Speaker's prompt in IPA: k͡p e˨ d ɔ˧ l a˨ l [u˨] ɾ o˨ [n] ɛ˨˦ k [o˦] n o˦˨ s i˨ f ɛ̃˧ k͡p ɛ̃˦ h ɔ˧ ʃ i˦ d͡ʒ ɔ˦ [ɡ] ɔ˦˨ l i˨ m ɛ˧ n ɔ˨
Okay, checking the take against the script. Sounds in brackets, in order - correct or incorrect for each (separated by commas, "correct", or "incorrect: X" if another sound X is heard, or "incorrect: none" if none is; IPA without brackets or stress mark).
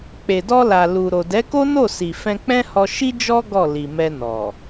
correct, incorrect: d, correct, correct